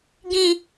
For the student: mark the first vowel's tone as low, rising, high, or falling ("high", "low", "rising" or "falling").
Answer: high